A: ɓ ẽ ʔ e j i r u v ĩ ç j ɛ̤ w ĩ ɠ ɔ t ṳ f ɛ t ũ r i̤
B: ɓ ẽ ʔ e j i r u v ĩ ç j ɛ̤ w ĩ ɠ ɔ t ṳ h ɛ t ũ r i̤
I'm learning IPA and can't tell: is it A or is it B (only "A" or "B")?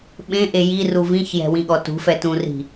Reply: A